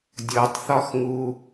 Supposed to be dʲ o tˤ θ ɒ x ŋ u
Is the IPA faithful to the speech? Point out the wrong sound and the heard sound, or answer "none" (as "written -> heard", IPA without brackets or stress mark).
none